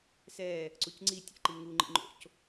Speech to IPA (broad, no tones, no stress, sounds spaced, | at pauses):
s ɛ | ǀ u c ŋ͡ǀ i tʲ ḛ ǃ i ŋ u ŋ͡ǃ ḭ ŋ͡ǃ o̰ c